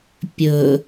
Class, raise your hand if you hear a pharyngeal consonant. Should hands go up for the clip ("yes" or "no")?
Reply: no